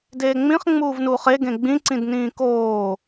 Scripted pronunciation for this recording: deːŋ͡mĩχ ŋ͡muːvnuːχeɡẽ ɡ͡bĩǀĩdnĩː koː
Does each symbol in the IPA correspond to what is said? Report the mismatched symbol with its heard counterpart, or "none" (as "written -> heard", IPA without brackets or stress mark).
none